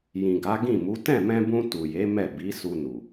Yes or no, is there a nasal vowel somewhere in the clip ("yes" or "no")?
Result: yes